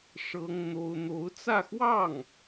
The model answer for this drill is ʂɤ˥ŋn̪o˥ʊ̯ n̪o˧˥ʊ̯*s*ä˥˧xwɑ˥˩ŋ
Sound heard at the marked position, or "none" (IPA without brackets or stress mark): t͡s